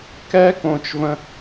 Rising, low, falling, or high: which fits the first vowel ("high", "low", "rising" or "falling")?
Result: high